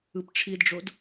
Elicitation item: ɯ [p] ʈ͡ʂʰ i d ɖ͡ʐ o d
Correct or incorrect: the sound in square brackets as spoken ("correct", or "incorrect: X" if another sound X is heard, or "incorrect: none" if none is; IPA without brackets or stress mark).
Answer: correct